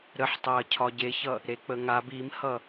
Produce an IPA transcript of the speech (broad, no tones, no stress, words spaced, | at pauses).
ɾəħtˤaɐ̯ cʰɒɟeçʌ | ɾek͡pəŋa bimhʌ